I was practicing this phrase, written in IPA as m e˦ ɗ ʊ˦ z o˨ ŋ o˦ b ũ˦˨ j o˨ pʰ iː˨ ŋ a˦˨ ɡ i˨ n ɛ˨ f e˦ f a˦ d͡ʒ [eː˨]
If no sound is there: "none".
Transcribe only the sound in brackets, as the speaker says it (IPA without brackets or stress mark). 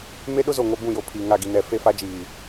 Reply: iː˨